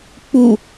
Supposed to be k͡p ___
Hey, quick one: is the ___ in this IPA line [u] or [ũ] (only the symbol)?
u